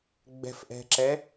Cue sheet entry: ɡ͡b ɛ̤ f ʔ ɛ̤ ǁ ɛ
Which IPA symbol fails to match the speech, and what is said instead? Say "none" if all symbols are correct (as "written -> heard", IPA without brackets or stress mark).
none